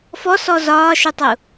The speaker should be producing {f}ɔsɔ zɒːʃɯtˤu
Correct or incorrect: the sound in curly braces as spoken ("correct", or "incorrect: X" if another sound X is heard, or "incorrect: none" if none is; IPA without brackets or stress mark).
correct